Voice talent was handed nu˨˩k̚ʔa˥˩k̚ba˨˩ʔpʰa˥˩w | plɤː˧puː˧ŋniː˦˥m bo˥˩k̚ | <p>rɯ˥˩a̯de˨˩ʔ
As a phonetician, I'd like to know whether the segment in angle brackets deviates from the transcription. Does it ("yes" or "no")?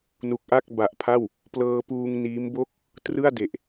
yes